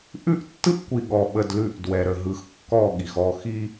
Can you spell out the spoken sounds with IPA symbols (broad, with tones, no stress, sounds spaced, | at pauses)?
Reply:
ʔ ʉ˦ ʔ tː ɯ˦ ʔ kʷ i˨ ɠ ɔ˨ ɓ ə˨ d l ʉ˨ ʔ d w ɛ˨ ɾ ə˨ ɦ ɯ˨ x kː ɔ˦˨ ɠ i˨ x ɔ˦˨ x i˦